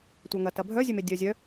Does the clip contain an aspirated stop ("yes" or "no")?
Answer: no